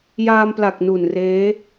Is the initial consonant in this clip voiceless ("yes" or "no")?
no